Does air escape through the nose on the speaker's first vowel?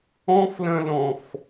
yes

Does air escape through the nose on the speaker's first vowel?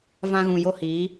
yes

